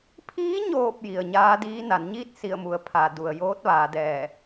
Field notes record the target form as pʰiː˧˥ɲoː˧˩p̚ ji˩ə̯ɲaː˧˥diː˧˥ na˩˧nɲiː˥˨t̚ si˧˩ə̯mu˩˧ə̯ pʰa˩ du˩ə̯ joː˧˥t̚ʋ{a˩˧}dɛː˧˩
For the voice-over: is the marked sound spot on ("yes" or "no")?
no